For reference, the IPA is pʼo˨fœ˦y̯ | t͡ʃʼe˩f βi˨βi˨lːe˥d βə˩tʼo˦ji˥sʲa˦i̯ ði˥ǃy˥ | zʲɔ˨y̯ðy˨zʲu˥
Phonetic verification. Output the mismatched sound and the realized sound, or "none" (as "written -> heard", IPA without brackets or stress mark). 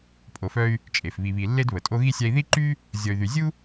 j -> ɣ